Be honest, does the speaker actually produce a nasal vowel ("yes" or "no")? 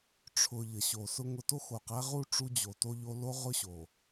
no